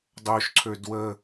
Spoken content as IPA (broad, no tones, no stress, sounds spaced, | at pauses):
dˤ o ʃ ǀʰ ø d w ə